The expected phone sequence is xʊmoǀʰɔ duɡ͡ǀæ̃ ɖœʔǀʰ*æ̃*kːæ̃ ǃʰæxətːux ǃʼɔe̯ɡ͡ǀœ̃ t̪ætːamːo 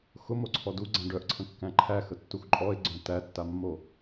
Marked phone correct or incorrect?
incorrect